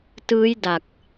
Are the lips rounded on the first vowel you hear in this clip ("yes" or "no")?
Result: no